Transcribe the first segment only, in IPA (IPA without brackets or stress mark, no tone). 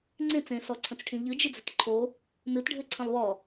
ŋ͡ǀ